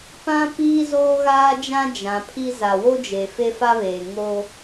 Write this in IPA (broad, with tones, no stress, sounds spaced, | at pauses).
p ã˦ p iː˦ z oː˦ ɣ aː˦ d͡ʒ ã˦ d͡ʒ ã˨ pʰ i˦ z a˨ w o˦ d͡ʒ e˨ f e˦ f a˦ β eː˨ ŋ o˦